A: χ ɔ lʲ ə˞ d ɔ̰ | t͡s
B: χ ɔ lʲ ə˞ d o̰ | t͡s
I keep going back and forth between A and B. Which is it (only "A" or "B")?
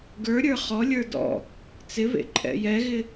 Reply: A